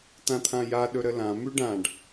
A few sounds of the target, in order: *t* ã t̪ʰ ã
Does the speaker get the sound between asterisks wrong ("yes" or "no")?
no